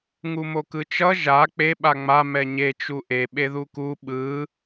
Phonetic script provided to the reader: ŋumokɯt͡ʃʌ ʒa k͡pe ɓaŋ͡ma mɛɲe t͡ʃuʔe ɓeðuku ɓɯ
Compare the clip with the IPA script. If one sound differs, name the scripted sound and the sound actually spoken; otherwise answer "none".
none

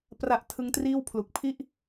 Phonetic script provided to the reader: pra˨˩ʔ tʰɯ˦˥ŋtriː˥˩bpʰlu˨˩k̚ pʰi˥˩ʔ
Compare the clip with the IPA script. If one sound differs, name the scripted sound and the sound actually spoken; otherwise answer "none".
b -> w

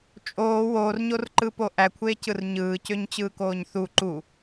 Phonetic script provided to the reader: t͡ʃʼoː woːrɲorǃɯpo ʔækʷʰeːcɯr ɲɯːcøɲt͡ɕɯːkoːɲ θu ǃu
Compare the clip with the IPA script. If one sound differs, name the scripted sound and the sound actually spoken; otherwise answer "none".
none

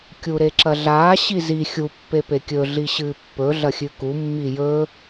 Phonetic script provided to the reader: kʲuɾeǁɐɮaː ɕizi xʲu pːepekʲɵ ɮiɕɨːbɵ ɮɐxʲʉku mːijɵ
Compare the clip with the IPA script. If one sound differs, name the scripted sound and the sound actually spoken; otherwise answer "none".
b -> pː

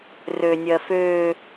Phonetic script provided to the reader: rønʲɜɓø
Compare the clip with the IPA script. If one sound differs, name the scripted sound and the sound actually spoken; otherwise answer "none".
ɓ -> f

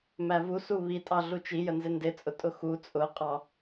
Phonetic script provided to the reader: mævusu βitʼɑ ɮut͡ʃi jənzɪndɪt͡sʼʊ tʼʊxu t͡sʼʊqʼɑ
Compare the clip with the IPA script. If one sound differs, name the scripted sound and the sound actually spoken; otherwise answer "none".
none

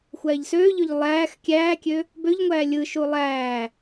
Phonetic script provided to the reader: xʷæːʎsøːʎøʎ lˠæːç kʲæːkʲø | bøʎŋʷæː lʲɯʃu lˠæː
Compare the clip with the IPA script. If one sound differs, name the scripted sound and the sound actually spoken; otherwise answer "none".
ç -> x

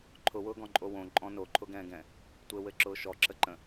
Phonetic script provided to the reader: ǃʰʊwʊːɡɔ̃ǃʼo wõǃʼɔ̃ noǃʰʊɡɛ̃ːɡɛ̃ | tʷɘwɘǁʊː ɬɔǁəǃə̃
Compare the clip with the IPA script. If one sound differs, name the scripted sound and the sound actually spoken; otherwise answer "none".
ɬ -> ʃ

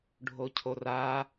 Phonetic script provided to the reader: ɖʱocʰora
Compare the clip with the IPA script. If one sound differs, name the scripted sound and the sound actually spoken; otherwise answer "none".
none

